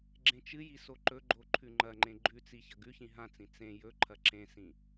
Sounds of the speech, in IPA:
ɡ͡ǁ ẽ t͡ʃ ɨ j i s o ǃ ɵ ɡ͡ǃ o ǃʰ ʉ ŋ͡ǃ ɐ ŋ͡ǃ ẽ ɡ͡ǃ ʉ t͡s i ç ɐ ɡ ʉ ç ĩ ɦ ã t͡s ĩ t͡s ẽ j ɵ ǃʰ ɐ ǁ ẽ s ĩ

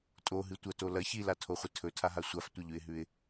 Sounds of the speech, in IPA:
tʼ o ɦ ɨ tʷ ɐ t o l ɐ ç i l a tʰ o χʷ ɨ tʰ ɵ tʰ a ɦ a sʷ a f tʷ ɐ ʎ ʉ ɪ̯ ɦ ʉ ɪ̯

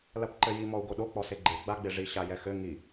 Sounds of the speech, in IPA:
l ɐ p ǃ ɘ j i m ɔ u̯ ɡ o ɗ o k͡p ɔ s e ɡ͡ǃ e ɡ͡b a ɡ͡b e ʐ i ɕ a j ɛ x ɘ ŋ i

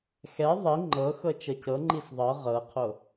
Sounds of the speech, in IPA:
x ɛ ðˤ i ŋ͡ǃ ɤ x ɤ t͡ʃ ɤ c ɤ ŋ͡ǃ i s ðˤ ɤ ʁ ɤ qʰ o

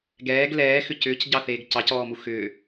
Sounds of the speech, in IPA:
ɡ ɛː ɡ l ɛː x ʏ c ʏː c ɟ ɑ θ eː ɡ c ɑ c ɔː m u x ʏː

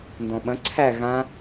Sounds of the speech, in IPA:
n d ɔ̃ ɓ ɐ̃ ǀʰ æ ɣ ã

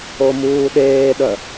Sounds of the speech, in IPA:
o m uː ɗ eː ɗ œ

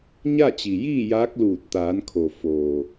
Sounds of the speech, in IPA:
ɲ a˥˨ t͡ɕ i˩ j iː˥˨ j aː˧˥ k̚ l uː˧˩ t̚ t̪ aː˩˧ n kʰ o˩ f oː˩

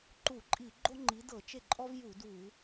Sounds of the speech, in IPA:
ǃ u˧˩˧ ǃʼ i˧˩˧ ɡ͡ǃ o˥ ŋ͡ǃ i˨˥ d ɤ˧˩˧ t͡ʃ e˥˩ ǃʼ ɔ˥ v j u˧˩˧ d u˧˩˧

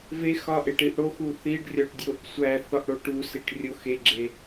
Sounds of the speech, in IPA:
v e x ɒ ʔ e ʈ i ʔ ɽ o x u θ i ɖ rʲ ɒ ʈ dʲ o ʔ sʷ æ θ ɒ ʔ ɽ o ʈ u s i ʈ rʲ o x e ɡ͡ǁ e

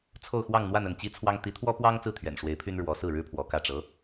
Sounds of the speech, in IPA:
t͡sʰ o˥˧ ʊ̯ x w ɑ˥˧ ŋ n̪ w a˥˧ n ə˥˩ n t͡ɕ i˥ t͡sʰ w ɑ˥ ŋ t̪ i˧˥ t̪ʰ w ɔ˥ p w ɑ˥ ŋ t͡s ɹ̩˥˩ t̪ʰ ɥ ɛ̰˨˩ n ʂ w e˧˥ ɪ̯ pʰ y˥ n ɻ w ɔ˧˥ s ɹ̩˥˩ ɻ ɻ̩˥ pʰ w ɔ˧˥ k ä˥˩ ʈ͡ʂ ɤ˧˥

